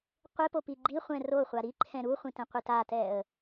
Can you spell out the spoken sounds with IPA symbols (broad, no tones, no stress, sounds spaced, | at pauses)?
qʷ e p o p i ɡ͡ǃ i χʷ ɛ̃ r o χʷ a ɾ i ǃʰ ɛ̃ ɾ u χʷ ĩ t ɛ̃ qʷ i t a t ɛ ə̯